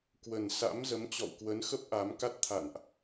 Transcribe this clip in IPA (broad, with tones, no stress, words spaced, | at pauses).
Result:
kwə˨˩nsa̰˧˥m zə˨˦mt͡ɕɔ̰˧˨wkwə˨˦nxə˦˥p̚ ʔa˨˦m ka˦˥t̚t̪ʰa̰˧˨nʔ